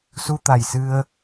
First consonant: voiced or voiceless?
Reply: voiceless